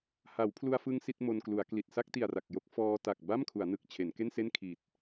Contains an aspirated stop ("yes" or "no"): yes